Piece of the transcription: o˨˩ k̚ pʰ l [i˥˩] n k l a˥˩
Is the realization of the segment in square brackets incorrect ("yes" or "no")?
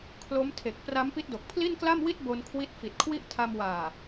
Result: no